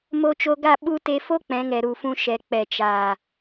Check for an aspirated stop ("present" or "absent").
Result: absent